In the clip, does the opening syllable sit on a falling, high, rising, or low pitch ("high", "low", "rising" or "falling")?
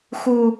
high